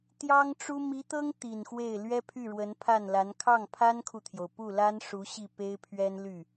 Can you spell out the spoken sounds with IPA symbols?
t̪jɑ˥ŋʈ͡ʂu˥ mi˧˥t̪ɤ˥ŋ t̪i˨˩nxwe˥˩ɪ̯ lɥɛ˥pʰy˥˩ɻwə˧˥n pʰa˥˩nla˧˥n kʰɑ˥˩ŋpʰa˥nkʰu˨t̪ʰjo˩ʊ̯ pu˥˩la˥nʂu˧˥ ɕi˥˩pe˥ɪ̯pʰɥɛ˥n ly˥˩

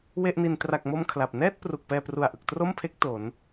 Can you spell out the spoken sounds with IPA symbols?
we˥˩ʔni˧n tra˨˩k̚mo˧m kʰla˨˩p̚ nɛː˥˩t̚ pru˨˩k̚pɛː˧pru˨˩a̯ʔɯ˨˩k̚ tro˥˩mpʰe˦˥k̚ to˩˦n

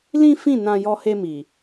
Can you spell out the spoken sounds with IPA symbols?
lĩ˦fĩ˦˨ nã˧jɔ˧he˧mi˨

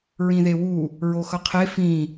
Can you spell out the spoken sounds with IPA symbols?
ɹĩðewu | ɹoxʌqʰe fĩ

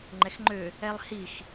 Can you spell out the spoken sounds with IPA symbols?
ŋ͡ǃɛxŋ͡ǃø | ɛlˠhix

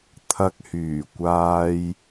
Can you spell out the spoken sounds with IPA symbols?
t̪ʰɐ˨k̚hyː˨˩kʷaː˧j

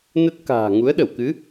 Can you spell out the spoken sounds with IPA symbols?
nə˦˥t̚ka̤ː˨˩ ŋu˨˦ə̯ɗə˧˩wkɨ˨˦

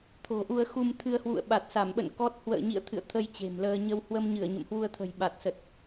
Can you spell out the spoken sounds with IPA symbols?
t̪ʰo̤˨˩ʔu˧ə̯ xu˧m t̪ʰɨ˧ə̯hwṵ˧˨ə̯ ɓa˨˩t̚sa˧˩mɓə̰˧˨n kɔ˦˥t̚ hwə̰ː˧˨ɲḭ˧˨ə̯ t̪ʰɨ̰˧˨ə̯ t̪ʰə˧j t͡ɕe̤˨˩mləː˧ ɲə˧w hwə˧mɲɨ˧˩ə̯ ɲə̰˧˨mhwu˧ə̯t̪ʰə̤˨˩j ɓa˨˩t̚sə˨˩t̚

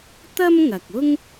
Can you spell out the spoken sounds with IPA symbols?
t̪ɐ˥mŋɐ˨k̚ʊ˥ŋ

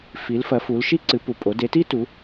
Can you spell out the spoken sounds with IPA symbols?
fi˨˦lfɐ˨˦fu˨˦lʃi˥ ǀɨ˨˦pu˨pʼo˨˦ de˨˦ti˥tu˨˦

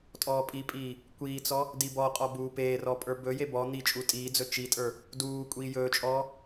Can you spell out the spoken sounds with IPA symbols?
tʼɔːpʼipʼiː | kʷiːt͡sɔ | dibɔqʼɔ buːpeːrɔ pʼə˞bɵje bɔ n̪i t͡ʃʼutʼiːd͡zɵ t͡ʃitʼə˞ | duː kʷʼiːjɵːt͡ʃʼɔː

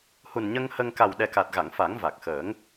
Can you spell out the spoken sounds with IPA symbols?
hu˨˩nɲə˧ŋhə˧ŋ ka˨˩w ɗɛ˨˩ka˨˩t̚ɣa˨˩˨ŋ fa˨˩˦ŋ va˨˩k̚xəː˨˩˦ŋ

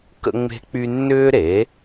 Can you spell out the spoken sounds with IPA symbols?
kə̰˥ŋ͡me̤˥k͡py˥ nːʏː˥ɾe˩˥

